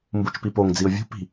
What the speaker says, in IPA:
m b u t͡ʃ p i p o ŋ d͡z i ʊ̯ vʲ ṳ p i̤

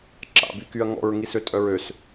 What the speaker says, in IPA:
ǁ a̰ b y k y ɐ̯ ŋ ɔ̰ ɹ ŋ i s ø tʼ œ ɹ ø s

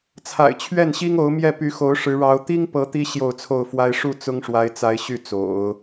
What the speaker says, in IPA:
t͡sʰ a̰˨˩ ɪ̯ t͡ɕʰ ɥ ɛ˥˩ n ɕ i˥ ŋ o˧˥ ʊ̯ m j ɛ˥˩ p y˧˥ x o˧˥ ʊ̯ ʂ ɻ̩˧˥ ɻ ɑ˧˥ ʊ̯ t̪ i˥ ŋ p ɤ˧˥ t̪ i˥ ɕ j o˥˧ ʊ̯ t͡sʰ o˥˩ ʊ̯ f w a˥ ɪ̯ ʂ u˥˩ t͡s ʊ˥ ŋ ʂ w a˧˥ ɪ̯ t͡s a˧˥ ɪ̯ ɕ y˥˩ t͡s o̰˨˩˦ ʊ̯

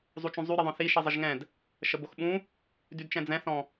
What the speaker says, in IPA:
zˤ u t͡ʃ ũ zˤ y ɾ i ðˤ œ̃ θ i ʃ i zˤ ə ʒ ŋ ɛ̃ d | ʃ ə b o x ɓ ũ | d y d t͡ʃ ɛ̃ d͡z ɛ̃ θ ɔ̃

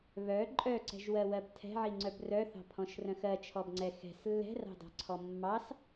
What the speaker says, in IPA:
β œ ǃʼ œ ǀ ɛ̤ ʒ w ɜ w ɜ b tʰ ɛ̤ ʕ i ŋ͡ǀ œ b r œ θ ɑ̤ pʰ ɔ̃ ʃ r œ̃ x ɜ t͡ʃʰ ɔ b ŋ͡ǀ ɛ x ɛ̤ s lː ɛ̤ r ɑ̤ d ɑ̤ ǀʰ ɔ mː ɑ s

